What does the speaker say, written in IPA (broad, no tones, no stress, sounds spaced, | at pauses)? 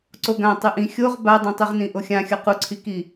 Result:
ǀ o ɡ ã tˤ ɯ ʔ ĩ xʲ o ʁ b a dˤ ĩ tˤ i ʁ n ĩ ʔ o xʲ ã xʲ ʌ q u ǀʰ i k i